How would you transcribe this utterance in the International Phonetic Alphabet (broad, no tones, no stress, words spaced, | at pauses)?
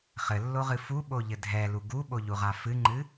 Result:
χɘlːoʁɨ fuɓoʎɘ dʱɛlu ɡuɓoʎuʁa fɨŋ͡ǃɨ